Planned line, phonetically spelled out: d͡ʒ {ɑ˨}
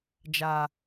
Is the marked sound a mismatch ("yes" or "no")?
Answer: yes